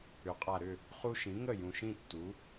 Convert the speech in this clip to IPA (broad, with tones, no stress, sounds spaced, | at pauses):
ʏ˩˥ qʼ a˨˩ ɾ ʏ˥˩ | χ u˦ ʃ ĩ˩˥ ŋ ə˥˩ j ũ˨˩ ʃ ĩ˥˩ tː u˩˥